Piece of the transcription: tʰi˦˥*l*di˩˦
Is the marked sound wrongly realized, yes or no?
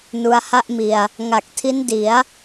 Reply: yes